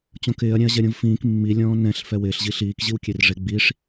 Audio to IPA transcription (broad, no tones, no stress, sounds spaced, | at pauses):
t͡ɕ õ k ɪː ɐ̯ ɾʲ ɛ̃ ɐ̯ ʑ ɛ ɾʲ õ v f ĩː k mː i lʲ ɔ̃ː n ɛ̃ ɬ f ɛ w ɪː ɬ ʑ i ɬ iː k ʑ i w kʲ e r ʐ e ɡ͡b i ʂ